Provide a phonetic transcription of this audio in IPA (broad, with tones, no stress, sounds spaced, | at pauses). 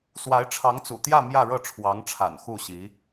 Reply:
s w a˧˥ ɪ̯ ʈ͡ʂʰ ɑ˧˥ ŋ t͡s ṵ˨˩ t̪ j ä˥˧ m j ä˥˧ ɻ ɤ˥˩ ʈ͡ʂʰ w ɑ˧˥ ŋ ʈ͡ʂʰ a̰˨˩ n x u˥˩ ɕ i˧˥